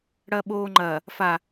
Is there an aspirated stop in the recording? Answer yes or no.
no